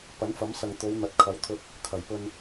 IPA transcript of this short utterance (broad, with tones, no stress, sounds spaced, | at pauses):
p ɐ˨˥ n f ɐ˨˥ m s ɐ˨ ŋ t̪ o˨˧ w n̪ ɐ˨ t̚ kʰ ɐ˨˥ w t̪ʰ ɵ˧ t̚ | kʰ ɐ˨˩ j p ɵ˧ n